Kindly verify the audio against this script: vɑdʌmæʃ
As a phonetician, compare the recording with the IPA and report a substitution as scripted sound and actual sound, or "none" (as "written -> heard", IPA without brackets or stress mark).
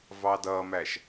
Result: none